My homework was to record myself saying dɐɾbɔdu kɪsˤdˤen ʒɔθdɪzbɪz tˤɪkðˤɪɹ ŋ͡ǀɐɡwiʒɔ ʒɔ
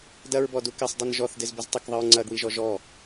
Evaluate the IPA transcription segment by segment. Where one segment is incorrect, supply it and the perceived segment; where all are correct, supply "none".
ɾ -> ɹ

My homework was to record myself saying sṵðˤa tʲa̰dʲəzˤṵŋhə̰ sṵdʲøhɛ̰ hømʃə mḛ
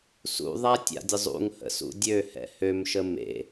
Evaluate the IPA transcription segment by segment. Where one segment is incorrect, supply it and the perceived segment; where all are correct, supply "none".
none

